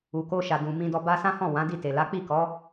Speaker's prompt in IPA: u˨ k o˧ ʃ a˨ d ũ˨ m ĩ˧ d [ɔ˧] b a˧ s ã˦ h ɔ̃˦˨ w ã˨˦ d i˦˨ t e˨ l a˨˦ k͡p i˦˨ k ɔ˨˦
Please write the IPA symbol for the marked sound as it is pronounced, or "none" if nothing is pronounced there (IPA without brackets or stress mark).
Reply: ɔ˧